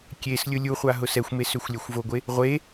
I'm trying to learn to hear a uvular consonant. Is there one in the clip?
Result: yes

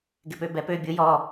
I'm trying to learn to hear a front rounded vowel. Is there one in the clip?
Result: yes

